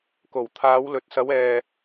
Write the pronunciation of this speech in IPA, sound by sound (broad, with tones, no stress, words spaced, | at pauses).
ko˨˩w t̪ʰaː˨˧wlɵ˨t̚ sɐ˨˧wɛː˨